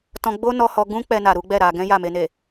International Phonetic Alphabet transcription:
t ɔ̃˧ ɡ͡b o˦ n ɔ˧ h ɔ˧ ɡ ũ˦ k͡p ɛ˧ n a˨ ɾ u˨˦ ɡ͡b ɛ˦˨ ɾ a˧ ɡ ɛ̃˦ j a˦˨ m e˧ n e˨

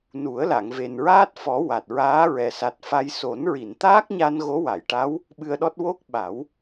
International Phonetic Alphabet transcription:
n u˨˩˦ ə̯ l a˨˩˨ ŋ v e˨˩ n ɹ aː˦˥ t̚ f ɔ˨˩˦ w a˨˩ t̚ ɹ aː˧˥ ɹ ɛ˨˩ s a˨˩ t̚ f a˧ j s o˨˩˦ n ɹ i˨˩˨ n t̪ aː˦˥ k̚ ɲ a˧ n ɣ o˧˥ w a˨˩˨ j ʈ a˧˥ w | ɓ ɨ˧ ə̯ ɗ ɔ˦˥ t̚ w o˦˥ k̚ ɓ a˨˩˦ w

